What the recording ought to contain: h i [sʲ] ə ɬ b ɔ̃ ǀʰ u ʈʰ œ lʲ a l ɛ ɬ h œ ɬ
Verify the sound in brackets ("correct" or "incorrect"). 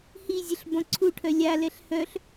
incorrect